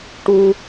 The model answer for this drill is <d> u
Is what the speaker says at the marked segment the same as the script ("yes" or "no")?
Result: no